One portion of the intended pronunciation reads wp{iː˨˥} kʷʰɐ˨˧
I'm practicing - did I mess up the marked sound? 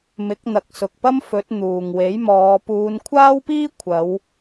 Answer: yes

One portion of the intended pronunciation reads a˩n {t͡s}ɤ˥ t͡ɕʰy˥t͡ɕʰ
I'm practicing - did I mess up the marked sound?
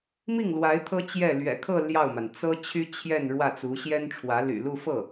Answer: no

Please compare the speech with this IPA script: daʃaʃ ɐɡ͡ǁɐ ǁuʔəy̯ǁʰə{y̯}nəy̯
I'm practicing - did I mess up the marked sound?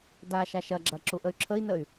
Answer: yes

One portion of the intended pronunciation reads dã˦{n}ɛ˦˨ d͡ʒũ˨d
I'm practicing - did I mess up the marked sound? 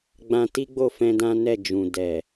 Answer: no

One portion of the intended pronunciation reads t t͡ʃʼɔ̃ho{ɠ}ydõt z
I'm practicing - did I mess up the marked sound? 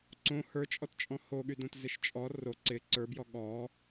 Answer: no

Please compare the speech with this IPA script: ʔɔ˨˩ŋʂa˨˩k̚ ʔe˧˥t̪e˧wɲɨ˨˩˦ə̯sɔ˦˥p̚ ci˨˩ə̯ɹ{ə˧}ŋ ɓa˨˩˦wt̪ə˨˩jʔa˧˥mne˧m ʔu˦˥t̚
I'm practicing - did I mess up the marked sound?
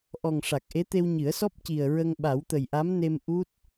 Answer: no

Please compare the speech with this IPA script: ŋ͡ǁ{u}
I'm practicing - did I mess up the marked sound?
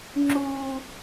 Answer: no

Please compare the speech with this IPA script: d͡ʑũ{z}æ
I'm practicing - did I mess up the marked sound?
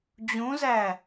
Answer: no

